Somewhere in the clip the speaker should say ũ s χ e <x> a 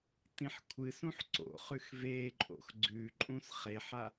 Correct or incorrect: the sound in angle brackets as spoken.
incorrect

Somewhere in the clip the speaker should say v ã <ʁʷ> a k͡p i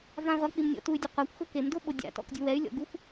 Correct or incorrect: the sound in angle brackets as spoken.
correct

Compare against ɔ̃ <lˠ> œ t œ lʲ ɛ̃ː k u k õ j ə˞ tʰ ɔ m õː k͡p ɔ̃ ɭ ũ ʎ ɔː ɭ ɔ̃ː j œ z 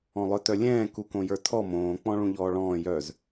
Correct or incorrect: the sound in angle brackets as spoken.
correct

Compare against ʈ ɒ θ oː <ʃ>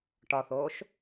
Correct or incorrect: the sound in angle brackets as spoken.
correct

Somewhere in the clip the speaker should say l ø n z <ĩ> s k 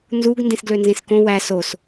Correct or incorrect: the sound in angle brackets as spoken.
correct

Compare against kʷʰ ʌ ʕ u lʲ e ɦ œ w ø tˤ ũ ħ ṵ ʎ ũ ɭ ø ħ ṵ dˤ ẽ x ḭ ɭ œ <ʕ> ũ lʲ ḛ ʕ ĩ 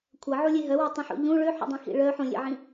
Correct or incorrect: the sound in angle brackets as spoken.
incorrect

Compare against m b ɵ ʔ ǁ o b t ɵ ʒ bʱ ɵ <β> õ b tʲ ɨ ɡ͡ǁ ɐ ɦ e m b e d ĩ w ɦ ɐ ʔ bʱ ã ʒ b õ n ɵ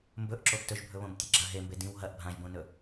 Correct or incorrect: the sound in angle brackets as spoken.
correct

